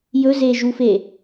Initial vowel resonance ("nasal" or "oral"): oral